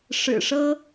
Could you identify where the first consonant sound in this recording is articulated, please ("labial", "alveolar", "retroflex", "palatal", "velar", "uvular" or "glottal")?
retroflex